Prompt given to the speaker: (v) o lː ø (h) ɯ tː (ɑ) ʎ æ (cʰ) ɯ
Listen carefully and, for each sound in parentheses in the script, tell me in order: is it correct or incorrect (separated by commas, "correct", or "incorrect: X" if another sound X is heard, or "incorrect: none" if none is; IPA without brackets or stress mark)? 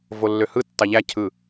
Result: correct, correct, correct, correct